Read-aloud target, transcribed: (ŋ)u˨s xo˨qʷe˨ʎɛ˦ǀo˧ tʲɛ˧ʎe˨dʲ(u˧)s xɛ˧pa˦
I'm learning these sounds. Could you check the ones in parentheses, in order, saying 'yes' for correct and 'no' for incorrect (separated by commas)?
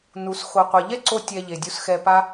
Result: no, yes